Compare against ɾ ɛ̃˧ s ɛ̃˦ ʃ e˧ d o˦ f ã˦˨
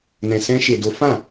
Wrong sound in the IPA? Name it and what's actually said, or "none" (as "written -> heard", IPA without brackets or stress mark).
ɾ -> n